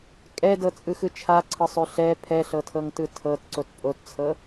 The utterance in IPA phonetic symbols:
kʼɛdɤt͡sʼɯxɯ t͡ʃʰaǀʰɤsˤø ɬɛ pʰɛɬɤtʰɤŋtɯ tʰɤtǀot pʼott͡sʰɤ

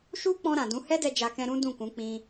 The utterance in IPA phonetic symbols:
ʃu˦k͡pɔ̃˧ ɾã˨dũ˨˦ hɛ˦dɛ˧ d͡ʒa˧kɛ̃˧ ɾũ˦dũ˦˨kũ˨˦ k͡pĩ˧

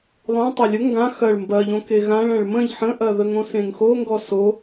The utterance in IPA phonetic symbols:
lˠõ tˤalʲə ŋɡã xɐɭ mbɐʎõ keɣãɭ ɐ̃ɭmə̃ʎ ħə̃ʔɐðəŋ õsẽŋxoŋɡɔ so

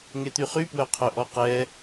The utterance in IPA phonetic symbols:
ŋet̪yχypwœ qʰœʔɔqɛ

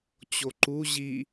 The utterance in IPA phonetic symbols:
t͡ɕoǃu ʑi

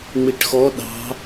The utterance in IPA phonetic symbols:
ŋ͡miʈxɔ ɗɑ̤

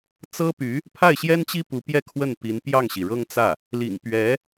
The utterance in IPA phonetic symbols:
t͡sɤ˥py˧˥ | pʰa˥˩ɪ̯ɕjɛ˥nt͡ɕi˥ pu˧˥pjɛ˥˧ kʰwə˥˩npi˧˥n pjɑ˥˩ŋɕi˩ɻɤ˥ŋt͡sä˥˩ | lḭ˨˩ŋpɥɛ˧˥

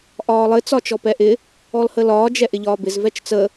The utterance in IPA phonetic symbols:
ʔɒːlˠɘ t͡sɒt͡ʃɔpɛʔɪ | ɔlhəlɒː d͡ʒɛʔɪʎɒːbɪz vɛt͡ʃt͡sə

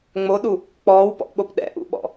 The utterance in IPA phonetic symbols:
ŋ͡moɗu | k͡pɔːwpɔ̰ʔɓop ɗɛ̰ʔṵɓɔ̰

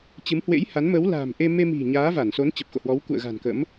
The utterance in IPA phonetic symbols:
t͡ɕɨ˨˦mhwḛ˧˥jha˨˦n mə˨˦wla̤ː˨˩mʔe˧ me˧mi̤˨˩ ɲaː˨˦va˧˩nso˨˦n t͡ɕə˨˩p̚xo̰˧˨hwɔ˨˦w kṵ˧˨ə̯ɣa̤˨˩nkə̰˧˥m

